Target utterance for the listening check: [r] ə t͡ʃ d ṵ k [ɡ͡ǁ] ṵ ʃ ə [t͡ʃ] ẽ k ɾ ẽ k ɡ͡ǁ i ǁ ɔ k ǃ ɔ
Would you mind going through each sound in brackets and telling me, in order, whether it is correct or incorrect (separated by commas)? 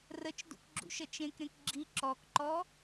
correct, correct, correct